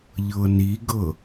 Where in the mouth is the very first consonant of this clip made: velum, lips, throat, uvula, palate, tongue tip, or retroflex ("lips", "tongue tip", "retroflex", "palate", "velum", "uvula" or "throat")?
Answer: palate